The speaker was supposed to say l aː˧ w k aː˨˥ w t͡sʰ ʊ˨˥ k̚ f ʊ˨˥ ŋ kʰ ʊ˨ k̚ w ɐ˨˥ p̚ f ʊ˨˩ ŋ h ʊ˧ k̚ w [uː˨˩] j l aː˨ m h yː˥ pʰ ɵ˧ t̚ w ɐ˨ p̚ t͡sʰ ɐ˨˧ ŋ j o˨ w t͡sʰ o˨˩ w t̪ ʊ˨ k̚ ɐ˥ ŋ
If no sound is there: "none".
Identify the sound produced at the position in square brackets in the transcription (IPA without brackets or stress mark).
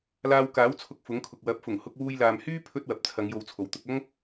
uː˧